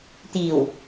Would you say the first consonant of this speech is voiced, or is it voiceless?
voiceless